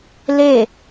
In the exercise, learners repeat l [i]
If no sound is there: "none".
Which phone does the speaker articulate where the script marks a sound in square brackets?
e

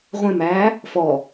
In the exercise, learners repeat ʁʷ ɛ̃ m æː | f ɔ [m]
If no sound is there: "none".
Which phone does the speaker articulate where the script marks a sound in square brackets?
none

